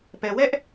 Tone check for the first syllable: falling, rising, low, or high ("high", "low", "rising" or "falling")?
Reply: low